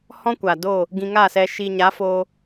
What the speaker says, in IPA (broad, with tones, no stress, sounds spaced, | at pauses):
h ɔ̃˦ kʷ a˨ d oː˦˨ | ɡ ĩ˧ ŋ a˦˨ s ɛ˧ ʃ i˧ ɲ a˨˦ f oː˧